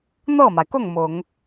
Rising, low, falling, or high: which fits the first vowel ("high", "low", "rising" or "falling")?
falling